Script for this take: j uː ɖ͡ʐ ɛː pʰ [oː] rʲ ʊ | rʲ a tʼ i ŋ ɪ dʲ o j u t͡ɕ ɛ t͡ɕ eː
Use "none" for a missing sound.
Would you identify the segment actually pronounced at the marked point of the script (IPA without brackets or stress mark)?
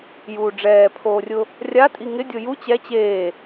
oː